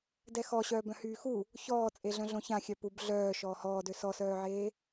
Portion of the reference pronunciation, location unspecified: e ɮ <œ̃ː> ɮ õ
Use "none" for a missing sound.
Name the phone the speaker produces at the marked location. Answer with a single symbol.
œ̃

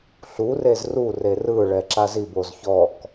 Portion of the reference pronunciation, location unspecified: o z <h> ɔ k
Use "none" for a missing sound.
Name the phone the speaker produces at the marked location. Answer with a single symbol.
ç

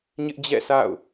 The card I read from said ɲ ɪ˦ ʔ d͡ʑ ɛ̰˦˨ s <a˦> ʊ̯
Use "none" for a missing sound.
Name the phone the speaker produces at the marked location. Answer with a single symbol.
a̰˦˨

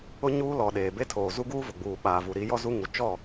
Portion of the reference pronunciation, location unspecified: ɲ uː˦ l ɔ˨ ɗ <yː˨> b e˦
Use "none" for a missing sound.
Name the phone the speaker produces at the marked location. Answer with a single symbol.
eː˨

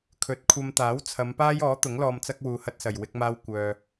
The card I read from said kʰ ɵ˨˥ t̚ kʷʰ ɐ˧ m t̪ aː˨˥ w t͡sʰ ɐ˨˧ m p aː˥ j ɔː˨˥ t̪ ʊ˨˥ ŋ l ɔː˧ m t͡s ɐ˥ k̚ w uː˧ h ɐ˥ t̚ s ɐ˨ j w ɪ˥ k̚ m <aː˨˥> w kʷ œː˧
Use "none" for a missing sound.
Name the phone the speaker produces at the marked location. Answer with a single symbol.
aː˥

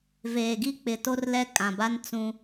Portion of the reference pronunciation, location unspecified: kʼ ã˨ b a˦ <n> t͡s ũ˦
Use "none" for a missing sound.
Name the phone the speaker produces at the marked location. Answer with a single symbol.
n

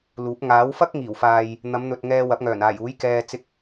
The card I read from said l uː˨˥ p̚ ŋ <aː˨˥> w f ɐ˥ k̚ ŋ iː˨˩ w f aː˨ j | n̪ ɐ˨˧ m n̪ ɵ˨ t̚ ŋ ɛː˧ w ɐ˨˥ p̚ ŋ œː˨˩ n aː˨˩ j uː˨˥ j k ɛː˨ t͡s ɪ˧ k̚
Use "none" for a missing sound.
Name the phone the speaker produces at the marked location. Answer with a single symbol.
aː˨˥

